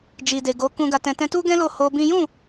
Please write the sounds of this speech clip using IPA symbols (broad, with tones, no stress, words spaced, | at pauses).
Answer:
d͡ʒi˨de˨ɡo˨˦ kũ˧ɡa˧tɛ̃˧ tɛ̃˧tu˦ɡɛ̃˦ lo˦˨ho˧bĩ˦ jũ˦˨